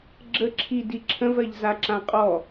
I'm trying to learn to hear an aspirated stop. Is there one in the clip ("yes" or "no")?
yes